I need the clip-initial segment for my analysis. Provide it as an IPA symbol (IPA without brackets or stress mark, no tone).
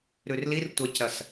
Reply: ɾ